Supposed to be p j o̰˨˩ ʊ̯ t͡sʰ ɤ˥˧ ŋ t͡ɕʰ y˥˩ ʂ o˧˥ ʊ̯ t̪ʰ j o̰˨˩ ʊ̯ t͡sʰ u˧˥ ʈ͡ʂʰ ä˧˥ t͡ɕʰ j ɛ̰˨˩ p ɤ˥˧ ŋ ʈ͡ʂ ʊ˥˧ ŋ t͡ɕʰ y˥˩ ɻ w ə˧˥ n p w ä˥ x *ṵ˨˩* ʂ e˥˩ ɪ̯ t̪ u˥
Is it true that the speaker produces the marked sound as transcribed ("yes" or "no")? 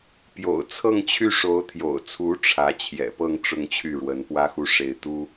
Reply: no